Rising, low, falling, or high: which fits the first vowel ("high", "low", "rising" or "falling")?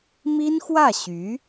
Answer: high